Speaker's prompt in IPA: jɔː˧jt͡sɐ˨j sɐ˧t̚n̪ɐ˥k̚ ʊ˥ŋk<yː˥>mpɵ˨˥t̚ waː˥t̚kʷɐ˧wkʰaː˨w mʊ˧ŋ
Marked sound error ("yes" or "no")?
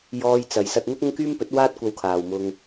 no